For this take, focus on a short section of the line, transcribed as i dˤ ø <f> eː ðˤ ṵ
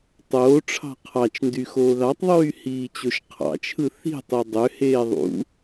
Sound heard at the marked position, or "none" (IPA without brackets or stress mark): h